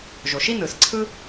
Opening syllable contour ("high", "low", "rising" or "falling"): low